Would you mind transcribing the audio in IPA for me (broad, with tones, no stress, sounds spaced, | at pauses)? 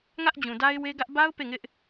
ŋ ä˦ ʔ d͡ʑ ũ˨ d a˦ ɪ̯ w e˦ ɡ ä˦ ʔ b a˦ ʊ̯ p e˦˨ ŋ ɪ˦ ʔ